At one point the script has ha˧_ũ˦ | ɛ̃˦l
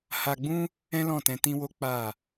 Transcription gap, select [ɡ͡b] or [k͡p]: ɡ͡b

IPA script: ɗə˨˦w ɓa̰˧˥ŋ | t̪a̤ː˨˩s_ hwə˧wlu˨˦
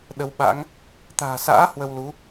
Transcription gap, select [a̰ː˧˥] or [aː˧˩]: a̰ː˧˥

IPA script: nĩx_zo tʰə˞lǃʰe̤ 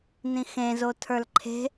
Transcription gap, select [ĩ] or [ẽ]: ẽ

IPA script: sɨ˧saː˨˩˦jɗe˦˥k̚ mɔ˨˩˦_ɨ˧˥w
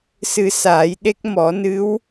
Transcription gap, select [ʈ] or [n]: n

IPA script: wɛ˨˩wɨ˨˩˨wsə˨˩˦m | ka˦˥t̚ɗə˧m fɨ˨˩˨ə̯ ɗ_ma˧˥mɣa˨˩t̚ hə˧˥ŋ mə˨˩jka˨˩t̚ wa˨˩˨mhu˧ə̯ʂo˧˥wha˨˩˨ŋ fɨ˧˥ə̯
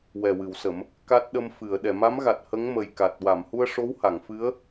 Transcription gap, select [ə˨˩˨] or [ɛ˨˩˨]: ɛ˨˩˨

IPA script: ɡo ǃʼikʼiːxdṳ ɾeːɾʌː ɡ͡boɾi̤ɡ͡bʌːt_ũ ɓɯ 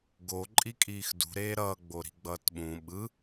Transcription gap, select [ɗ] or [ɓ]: ɓ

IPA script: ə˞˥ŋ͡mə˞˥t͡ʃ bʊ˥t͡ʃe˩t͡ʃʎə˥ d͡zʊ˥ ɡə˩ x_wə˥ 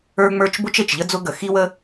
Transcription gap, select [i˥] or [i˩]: i˥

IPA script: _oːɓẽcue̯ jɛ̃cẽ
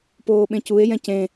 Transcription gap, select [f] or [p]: p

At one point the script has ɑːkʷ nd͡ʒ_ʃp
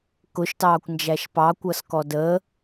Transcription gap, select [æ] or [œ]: æ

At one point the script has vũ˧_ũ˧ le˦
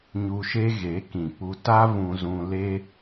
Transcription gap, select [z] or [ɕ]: z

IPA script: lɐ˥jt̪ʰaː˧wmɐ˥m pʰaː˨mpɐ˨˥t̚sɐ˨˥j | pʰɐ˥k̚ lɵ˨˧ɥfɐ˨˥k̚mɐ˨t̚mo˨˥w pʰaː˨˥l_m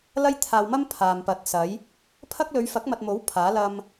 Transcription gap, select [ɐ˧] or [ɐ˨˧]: ɐ˧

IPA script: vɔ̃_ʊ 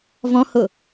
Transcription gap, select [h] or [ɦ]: h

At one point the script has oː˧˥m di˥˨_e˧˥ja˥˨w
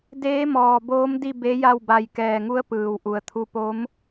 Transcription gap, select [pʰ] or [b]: b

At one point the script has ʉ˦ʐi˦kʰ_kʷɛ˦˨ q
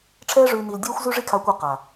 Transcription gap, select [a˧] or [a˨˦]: a˧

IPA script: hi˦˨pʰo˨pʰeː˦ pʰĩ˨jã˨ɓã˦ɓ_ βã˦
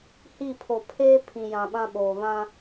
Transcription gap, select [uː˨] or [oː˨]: oː˨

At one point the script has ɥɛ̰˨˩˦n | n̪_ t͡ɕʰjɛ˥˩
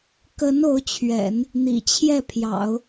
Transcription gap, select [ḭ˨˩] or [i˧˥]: ḭ˨˩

